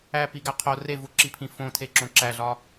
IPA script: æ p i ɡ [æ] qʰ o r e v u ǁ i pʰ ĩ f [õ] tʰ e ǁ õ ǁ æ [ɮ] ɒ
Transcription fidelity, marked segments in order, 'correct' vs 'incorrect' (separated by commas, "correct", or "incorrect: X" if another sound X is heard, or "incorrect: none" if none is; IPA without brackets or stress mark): correct, correct, correct